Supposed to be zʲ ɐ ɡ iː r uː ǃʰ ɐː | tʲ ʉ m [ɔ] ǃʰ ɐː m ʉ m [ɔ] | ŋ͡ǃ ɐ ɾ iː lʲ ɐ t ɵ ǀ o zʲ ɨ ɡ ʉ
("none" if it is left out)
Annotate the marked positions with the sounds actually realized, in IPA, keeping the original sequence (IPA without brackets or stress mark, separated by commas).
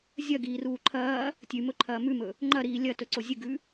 ɵ, ɵ